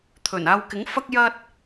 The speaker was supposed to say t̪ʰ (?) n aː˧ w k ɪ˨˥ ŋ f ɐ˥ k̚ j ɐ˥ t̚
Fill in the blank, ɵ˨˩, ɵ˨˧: ɵ˨˩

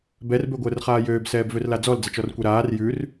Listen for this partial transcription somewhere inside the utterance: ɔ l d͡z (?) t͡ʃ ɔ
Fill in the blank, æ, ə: ə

